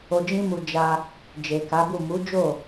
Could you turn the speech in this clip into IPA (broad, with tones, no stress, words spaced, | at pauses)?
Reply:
o˧d͡ʒĩ˦mu˧ d͡ʒa˧ | d͡ʒe˨ka˨˦bu˦˨ mu˨˦d͡ʒo˦˨